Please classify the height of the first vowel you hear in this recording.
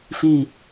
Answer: high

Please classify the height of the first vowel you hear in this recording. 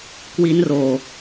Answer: high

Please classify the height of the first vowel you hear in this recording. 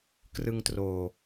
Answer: high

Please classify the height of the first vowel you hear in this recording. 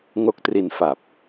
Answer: mid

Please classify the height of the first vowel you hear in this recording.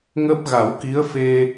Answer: mid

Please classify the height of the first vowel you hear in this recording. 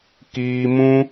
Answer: high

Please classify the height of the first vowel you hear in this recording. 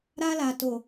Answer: low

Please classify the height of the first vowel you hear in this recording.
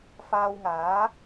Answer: low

